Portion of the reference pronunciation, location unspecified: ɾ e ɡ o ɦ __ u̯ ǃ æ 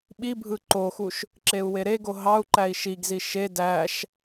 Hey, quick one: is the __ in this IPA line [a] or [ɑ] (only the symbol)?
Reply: ɑ